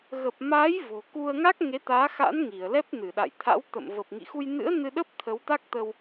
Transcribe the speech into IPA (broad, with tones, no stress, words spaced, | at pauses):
ɣə˨˩p̚maː˨˦j vo̤˨˩ku˧ə̯ ŋa˦˥k̚ ŋe˨˦t̪aː˨˦xa̰˧˥n ŋi˧˩ə̯ lɛ˦˥p̚nɨ˧˩ɗa̰˧˨jt̪ʰa̰˧˥w t̪ə̰˧˨m və˨˩p̚ŋḭ˧˨xu˧j nɨ̰˧˥ə̯ nɨ˧ɗə˦˥p̚ t̪ʰə˨˦wt̪a˦˥k̚t̪ə˧w